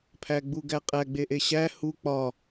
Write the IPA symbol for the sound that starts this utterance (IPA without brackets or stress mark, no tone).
pʰ